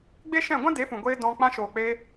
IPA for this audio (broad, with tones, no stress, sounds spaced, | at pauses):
ɡ͡b e˦ ʃ ɛ̃˦˨ ɡʷ ã˦ d e˨˦ f ũ˨ ɡʷ eː˧ d ɔ̃˧ k͡p ã˧ ʃ oː˨ k͡p e˧